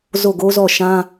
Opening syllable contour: falling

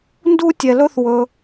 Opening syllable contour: high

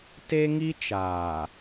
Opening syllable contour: high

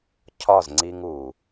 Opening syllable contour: falling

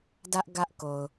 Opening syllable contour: high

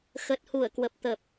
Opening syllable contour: low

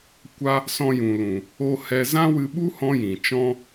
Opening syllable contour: high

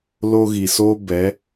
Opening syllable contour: high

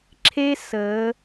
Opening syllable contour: high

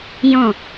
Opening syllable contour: falling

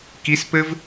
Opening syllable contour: rising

